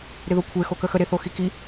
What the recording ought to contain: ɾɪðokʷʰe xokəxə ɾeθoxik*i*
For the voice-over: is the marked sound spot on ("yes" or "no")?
yes